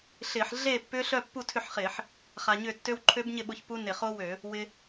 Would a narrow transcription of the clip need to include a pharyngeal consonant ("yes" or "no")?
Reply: yes